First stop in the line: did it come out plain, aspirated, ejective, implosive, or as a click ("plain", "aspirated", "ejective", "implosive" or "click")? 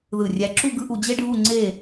click